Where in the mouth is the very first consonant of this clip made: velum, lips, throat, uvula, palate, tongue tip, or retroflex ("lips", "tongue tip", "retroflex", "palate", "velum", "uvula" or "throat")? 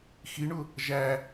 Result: velum